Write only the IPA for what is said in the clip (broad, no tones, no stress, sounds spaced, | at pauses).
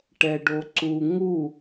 ʈ ɛ ɖ o ǀ u ŋ u